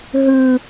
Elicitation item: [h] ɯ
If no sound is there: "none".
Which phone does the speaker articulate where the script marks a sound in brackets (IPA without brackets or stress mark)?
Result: ɦ